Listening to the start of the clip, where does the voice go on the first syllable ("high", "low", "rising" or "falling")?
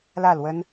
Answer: falling